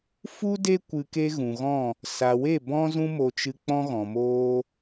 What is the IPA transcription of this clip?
f u˦ d e˦ kʷ ɨ˧ k e˦ ɣ ũ˨ ɣ ɔ̃˦˨ | s a˨ w e˦˨ b ɔ̃˦ z ũ˦ m o˧ t͡ʃ ɨ˧ k͡p ɔ̃˦ ɣ ɔ̃˨ m oː˧

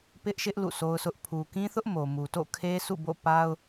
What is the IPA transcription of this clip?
p ɪ˦ ʔ ʃ ɪ˦ ʔ l ṵ˦˨ sʰ o˦ ʊ̯ s ʊ˦ ʔ pʰ u˨ k ĩ˦ θ ʊ˦ ʔ m o˨ m u˨ t o̰˦˨ kʰ e˦ s ṵ˦˨ b o̰˦˨ p a˦ ʊ̯

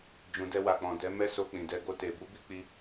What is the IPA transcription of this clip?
d͡ʒ ũ˨ d ɛ˧ w a˨ k͡p ɔ̃˨ d ɛ˨˦ m ɛ˦ s o˧ k͡p ĩ˨ d ɛ˧ ɡ o˧ t e˨ b u˨˦ b i˦ k͡p i˦

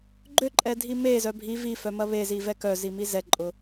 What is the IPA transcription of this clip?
ɡ͡ǃ ø ǃʼ ɛ dʱ i m e z œ bʱ i v i f œ m ɐ β e z i v ɛ k œ z i m i z ɛ ǃʼ ʊ

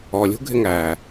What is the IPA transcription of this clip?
ɔ lʲ ṳ ɡʱ ɪ ŋ æ

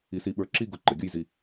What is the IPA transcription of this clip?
i˧ s i˧ ɓ ə˞˧ ǁ i˥˧ ɡ ʊ˧˩ ǃ ə˩˧ ɡʲ ʊ˥˧ j z i˧

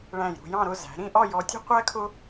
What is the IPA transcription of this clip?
ɭ æ̃˧˩ j ɾ ṳ˧ j ɑ̃˥˧ ɾ ʊ˥˧ z æ̤˩˧ ɾ ĩ˥˧ ʔ ɒ˥˧ j ɔ˧ tʲ ṳ˥ qʷ æ˥ kʰ ʊ˥

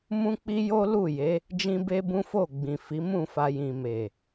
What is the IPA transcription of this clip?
m ũ˦ k͡p i˦ j o˦ l u˦˨ j e˨˦ | d͡ʒ ĩ˦ b e˦ b ũ˦ f o˦˨ ɡ͡b ĩ˨ f i˨˦ m ũ˦˨ f a˧ j ĩ˨ m e˨

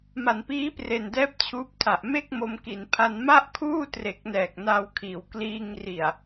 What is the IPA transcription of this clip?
m a˩˦ n p iː˦˥ p r e˨˩ n d ɛː˦˥ p̚ t͡ɕʰ uː˦˥ p̚ tʰ a˨˩ ʔ m e˥˩ k̚ m o˧ m k i˩˦ n pʰ a˧ n m a˥˩ ʔ kʰ uː˥˩ t r e˨˩ k̚ n ɛː˨˩ k̚ n a˧ w kʰ iː˩˦ w k l iː˧ ŋ r i˨˩ a̯

